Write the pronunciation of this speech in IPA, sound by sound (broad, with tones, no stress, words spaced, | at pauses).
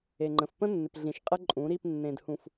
e˨ŋ͡ǃə̃˨f pə̃˦nːɪ˨p ɮĩ˨ʃ qʼɪ˦ǃʼũ˨˦ ɾi˦˨p nːẽ˨dhũ˨f